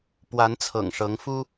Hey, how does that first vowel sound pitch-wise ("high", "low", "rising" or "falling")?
rising